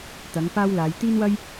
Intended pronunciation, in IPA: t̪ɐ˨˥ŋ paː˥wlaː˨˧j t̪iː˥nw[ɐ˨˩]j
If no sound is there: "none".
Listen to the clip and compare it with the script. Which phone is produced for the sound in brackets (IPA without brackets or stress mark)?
ɐ˥